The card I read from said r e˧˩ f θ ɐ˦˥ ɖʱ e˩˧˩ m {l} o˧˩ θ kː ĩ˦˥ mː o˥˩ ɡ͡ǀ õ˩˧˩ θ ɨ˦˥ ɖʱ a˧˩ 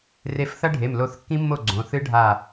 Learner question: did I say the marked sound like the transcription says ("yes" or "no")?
yes